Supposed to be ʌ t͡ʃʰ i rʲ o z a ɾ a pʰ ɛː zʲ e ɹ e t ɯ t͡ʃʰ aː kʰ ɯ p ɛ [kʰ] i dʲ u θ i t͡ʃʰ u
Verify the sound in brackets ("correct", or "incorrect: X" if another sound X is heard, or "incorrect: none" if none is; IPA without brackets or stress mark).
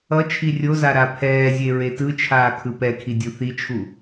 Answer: correct